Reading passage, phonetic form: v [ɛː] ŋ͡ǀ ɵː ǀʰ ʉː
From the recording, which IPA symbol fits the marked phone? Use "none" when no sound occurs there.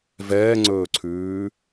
ɛː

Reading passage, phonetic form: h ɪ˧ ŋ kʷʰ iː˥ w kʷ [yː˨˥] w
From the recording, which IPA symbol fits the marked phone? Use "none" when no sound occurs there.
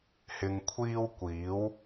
iː˨˥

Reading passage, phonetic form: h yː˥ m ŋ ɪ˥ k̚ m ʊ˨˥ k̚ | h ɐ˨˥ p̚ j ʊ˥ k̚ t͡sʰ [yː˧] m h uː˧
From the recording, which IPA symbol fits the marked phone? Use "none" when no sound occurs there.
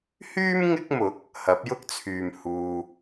yː˨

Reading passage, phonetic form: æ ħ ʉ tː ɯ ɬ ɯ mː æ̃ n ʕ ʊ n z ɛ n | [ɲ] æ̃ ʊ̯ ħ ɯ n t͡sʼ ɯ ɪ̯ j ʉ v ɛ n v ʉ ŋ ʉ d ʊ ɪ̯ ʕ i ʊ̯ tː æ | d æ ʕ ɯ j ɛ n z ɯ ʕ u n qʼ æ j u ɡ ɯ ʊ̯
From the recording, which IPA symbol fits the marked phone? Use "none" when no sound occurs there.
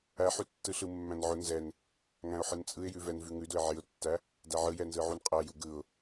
ŋ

